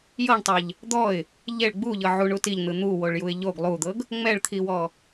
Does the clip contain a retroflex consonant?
yes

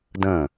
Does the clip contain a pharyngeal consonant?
no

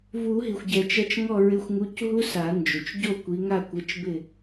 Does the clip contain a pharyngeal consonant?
no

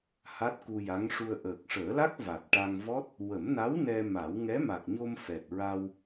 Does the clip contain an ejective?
no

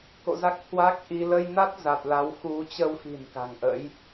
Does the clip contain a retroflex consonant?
no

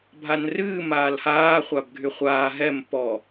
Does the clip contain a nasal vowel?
no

